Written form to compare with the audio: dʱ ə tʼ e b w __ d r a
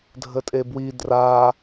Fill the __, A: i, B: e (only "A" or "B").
A